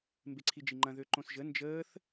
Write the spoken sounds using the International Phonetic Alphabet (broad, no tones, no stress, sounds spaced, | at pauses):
m b e ǀʰ i d͡ʒ i ŋ͡ǃ ɐ̃ ð ø ǃ õ s ʒ ə n d͡ʒ əː θ